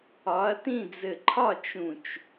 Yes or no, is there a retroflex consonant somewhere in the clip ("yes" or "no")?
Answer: no